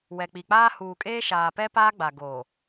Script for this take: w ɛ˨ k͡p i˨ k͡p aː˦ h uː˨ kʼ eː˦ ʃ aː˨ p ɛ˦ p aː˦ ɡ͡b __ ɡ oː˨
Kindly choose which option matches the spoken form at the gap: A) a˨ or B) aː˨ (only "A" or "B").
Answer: A